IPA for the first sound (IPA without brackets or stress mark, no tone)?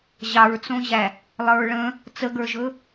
ʑ